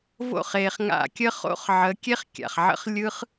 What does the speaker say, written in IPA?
v o̰˦˨ χ e˨ χ ŋ a̰˧ kʲ ə˦ χ o̰˦ χ ʕ ə˨˦ kʲ e˦ χ kʲ a̰˨ χ ʕ ə̰˧ χ lʲ ɯ˦ χ

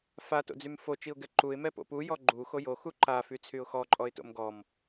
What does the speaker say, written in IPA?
f a t o̰ d͡z y m f o t͡ʃ i ʊ̯ ɡ ɛ ǃ u ɪ̯ m ɛ p o̰ p u j ɔ ɡ͡ǃ u x o j o x u ǃ a f y t͡sʰ y ʊ̯ x ɔ ǃʼ ɔ ɪ̯ t o̰ m ɡ ɔ m

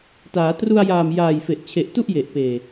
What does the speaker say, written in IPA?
t aː˩˦ t r u˧ a̯ j aː˨˩ m j aː˨˩ j f e˨˩ ʔ t͡ɕʰ e˨˩ ʔ t u˥˩ ʔ j e˨˩ ʔ p eː˨˩

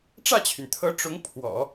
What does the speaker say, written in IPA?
ʈ͡ʂ ä˥˩ t͡ɕʰ y˩ n t̪ʰ ɤ˧˥ ʈ͡ʂ ʊ˧˥ ŋ pʰ w ɔ̰˨˩˦

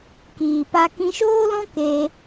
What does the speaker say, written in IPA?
k iː˨ p a˧ k ĩ˧ ʃ oː˦ l ɔ̃˦ k e˧

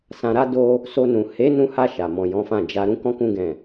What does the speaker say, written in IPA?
s ã˨ ɾ a˧ d o˧ | s o˧ n ũ˨ h e˨˦ n ũ˧ h a˧ ʃ a˨ m ɔ̃˨ j ɔ̃˨˦ f ã˦˨ d͡ʒ a˧ ɾ ũ˦ k ɔ̃˦ k ũ˦ ɡ ɛ̃˦˨

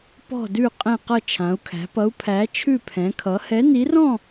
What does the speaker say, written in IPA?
p ɔ̤˥˧ d ʉ˥˧ qʼ ɛ̃˥˧ q ʌ˥˧ t͡ʃʰ ã˨˥ u̯ kʰ æ̤˨˥ p ʌ˨˥ u̯ pʰ æ˨˥ t͡ʃʰ ʉ˥˧ pʰ ɛ̃˨˥ kʰ ʌ˨˥ h ɛ˨˥ n i˨˥ r ɔ̃˥˧

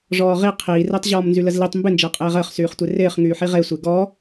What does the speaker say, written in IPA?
ʐ ɔː ʁ i qʰ iː r ɪː tˤ ʑ ɔː m n z y l ə z l i tˤ m b ɪ n d͡ʒ əː qʼ eː ʁ əː χ s yː χ tʷ e r ɪː χ ŋ yː ħ i ʁ e sʷ e ɡ ɔ

